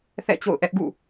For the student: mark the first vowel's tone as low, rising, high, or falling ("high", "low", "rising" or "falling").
falling